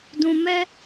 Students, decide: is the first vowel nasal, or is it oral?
nasal